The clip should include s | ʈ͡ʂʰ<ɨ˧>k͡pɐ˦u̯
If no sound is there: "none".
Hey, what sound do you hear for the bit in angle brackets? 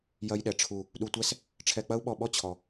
ɛ˧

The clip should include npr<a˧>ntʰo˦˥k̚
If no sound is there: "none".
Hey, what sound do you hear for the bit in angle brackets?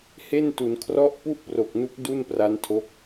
a˦˥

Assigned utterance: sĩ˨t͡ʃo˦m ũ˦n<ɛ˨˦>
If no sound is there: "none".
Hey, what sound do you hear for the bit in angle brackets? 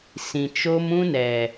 ɛ˨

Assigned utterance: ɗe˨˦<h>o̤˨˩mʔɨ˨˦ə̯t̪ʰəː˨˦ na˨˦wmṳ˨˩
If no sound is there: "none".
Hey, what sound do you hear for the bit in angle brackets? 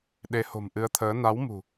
h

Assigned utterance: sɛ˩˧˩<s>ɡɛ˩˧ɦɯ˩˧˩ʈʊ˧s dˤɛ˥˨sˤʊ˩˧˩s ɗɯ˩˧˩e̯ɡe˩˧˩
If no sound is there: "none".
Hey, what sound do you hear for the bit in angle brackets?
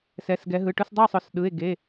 s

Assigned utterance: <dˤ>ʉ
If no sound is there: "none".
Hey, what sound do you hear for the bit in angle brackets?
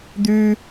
d̪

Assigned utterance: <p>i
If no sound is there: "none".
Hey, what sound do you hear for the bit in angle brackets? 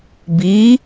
b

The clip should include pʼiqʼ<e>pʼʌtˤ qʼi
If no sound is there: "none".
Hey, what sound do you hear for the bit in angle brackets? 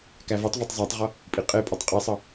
e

